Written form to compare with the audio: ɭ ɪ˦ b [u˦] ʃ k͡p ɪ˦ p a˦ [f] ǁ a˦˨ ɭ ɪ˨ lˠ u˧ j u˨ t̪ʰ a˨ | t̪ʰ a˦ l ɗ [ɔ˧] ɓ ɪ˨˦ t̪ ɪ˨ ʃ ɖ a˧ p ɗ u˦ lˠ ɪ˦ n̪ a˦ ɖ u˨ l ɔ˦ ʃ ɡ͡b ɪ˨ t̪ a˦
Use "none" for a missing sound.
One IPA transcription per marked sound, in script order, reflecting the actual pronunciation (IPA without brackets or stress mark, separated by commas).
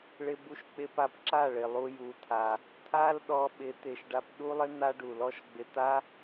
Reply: u˦, p, ɔ˧